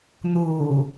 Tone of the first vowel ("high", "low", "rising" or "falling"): low